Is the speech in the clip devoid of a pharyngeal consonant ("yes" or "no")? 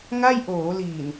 yes